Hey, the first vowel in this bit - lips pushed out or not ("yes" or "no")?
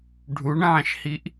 yes